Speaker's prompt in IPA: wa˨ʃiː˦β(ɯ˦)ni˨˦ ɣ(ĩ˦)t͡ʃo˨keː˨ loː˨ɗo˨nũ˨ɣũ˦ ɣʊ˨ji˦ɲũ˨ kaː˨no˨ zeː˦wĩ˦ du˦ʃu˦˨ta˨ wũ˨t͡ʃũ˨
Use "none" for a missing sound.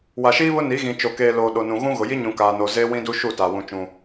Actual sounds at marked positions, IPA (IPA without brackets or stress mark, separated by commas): ʊ˦, ĩ˨